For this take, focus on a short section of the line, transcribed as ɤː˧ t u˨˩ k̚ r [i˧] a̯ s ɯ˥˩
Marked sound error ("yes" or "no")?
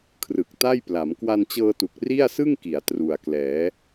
yes